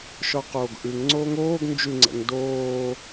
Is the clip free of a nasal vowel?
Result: yes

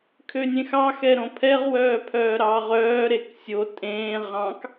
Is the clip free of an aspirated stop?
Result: no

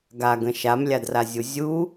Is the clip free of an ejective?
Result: yes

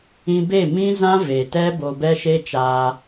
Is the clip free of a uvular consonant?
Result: yes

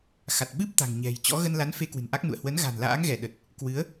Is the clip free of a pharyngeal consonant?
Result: yes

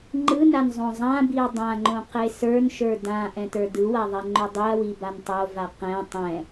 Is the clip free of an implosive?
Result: yes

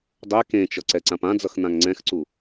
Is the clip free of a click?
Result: no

